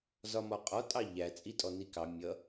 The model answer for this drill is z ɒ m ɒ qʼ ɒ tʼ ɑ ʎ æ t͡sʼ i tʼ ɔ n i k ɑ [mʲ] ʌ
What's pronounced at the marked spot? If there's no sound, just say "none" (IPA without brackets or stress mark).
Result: mʲ